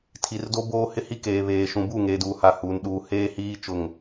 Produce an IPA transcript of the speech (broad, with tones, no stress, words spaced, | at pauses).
tʰi˨rdo˦ boː˦hɪ˦ hi˦keː˨βeː˨ʃũ˨ bu˦˨ŋeː˨duː˨ha˨ huː˨nɗuː˨heː˦ hiː˦ t͡ʃʊ˦˨ŋ